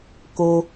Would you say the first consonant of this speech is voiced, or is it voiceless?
voiceless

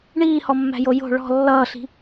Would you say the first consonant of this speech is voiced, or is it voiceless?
voiced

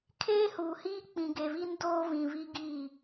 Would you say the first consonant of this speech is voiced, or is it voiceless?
voiceless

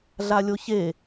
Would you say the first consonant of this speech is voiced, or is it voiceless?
voiced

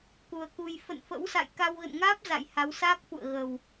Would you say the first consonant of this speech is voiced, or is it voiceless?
voiceless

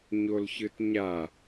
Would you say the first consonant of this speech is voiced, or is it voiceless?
voiced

